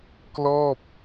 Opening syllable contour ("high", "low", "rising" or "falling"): falling